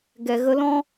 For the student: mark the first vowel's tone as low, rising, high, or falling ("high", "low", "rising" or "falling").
low